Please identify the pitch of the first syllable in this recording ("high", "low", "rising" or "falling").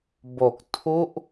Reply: low